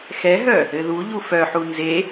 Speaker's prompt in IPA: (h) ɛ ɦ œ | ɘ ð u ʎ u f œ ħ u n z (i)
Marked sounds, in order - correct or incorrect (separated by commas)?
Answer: incorrect, incorrect